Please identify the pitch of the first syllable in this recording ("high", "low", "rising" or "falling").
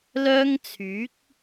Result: high